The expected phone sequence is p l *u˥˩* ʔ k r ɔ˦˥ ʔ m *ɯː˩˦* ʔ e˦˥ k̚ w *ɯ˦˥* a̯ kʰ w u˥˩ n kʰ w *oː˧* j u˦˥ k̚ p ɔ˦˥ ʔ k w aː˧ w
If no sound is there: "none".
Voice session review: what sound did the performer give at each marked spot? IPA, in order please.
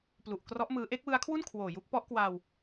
u˨˩, ɯː˦˥, ɯ˦˥, oː˨˩

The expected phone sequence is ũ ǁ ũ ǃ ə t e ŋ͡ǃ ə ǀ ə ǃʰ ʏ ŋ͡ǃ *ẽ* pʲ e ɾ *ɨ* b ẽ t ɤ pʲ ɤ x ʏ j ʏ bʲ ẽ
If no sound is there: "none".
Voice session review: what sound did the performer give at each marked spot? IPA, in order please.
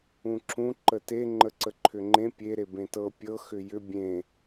ẽ, e

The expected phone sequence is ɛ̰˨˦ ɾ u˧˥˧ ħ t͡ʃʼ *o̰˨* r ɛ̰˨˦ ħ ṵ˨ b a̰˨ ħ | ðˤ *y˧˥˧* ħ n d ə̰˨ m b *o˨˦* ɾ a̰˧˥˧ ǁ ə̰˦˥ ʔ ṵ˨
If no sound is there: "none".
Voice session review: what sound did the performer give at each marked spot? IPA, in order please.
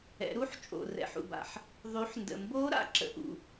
o̰˨, y˨˦, o˦˥

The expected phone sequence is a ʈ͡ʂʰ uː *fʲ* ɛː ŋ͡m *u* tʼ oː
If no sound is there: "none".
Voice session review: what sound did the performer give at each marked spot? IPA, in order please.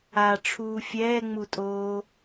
fʲ, u

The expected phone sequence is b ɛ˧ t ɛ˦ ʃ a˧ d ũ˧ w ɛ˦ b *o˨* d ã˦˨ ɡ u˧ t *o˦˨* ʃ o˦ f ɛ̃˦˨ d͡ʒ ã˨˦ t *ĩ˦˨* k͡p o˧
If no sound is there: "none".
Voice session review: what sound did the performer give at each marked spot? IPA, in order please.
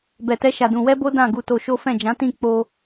o˦, o˧, ĩ˦˨

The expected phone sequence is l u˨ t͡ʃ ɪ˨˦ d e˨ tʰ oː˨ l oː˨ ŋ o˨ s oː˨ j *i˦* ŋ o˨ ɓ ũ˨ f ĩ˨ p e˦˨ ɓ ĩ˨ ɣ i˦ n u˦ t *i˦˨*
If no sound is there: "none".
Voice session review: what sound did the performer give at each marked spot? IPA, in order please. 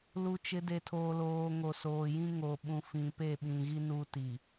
ĩ˦, i˨

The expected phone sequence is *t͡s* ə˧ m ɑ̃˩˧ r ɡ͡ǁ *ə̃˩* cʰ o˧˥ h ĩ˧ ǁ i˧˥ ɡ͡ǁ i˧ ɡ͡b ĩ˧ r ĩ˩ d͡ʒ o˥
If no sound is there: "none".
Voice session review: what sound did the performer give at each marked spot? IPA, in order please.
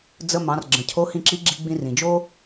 d͡z, ə̃˩

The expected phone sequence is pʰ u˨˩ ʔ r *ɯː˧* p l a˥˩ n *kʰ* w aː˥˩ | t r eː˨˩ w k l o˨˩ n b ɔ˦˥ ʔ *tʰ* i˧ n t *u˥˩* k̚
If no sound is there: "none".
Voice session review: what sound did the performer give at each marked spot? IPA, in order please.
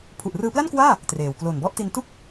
ɯː˧, k, t, u˥˩

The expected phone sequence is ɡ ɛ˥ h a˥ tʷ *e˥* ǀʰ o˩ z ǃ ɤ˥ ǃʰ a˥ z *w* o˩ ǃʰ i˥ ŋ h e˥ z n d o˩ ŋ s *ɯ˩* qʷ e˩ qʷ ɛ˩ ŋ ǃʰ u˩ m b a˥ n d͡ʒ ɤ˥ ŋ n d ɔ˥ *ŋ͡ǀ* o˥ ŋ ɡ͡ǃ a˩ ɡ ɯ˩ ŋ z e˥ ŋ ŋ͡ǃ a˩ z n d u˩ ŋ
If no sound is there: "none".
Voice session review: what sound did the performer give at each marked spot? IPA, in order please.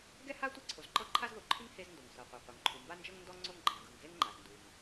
e˥, ð, ɤ˩, ŋ͡ǀ

